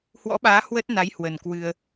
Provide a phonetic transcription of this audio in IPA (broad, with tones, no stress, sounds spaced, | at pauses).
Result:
h w ɔ̰˧˥ ɓ aː˨˦ h w ə˦˥ t̚ n a˨˦ j h w ə˨˩ n k w ɨ˧ ə̯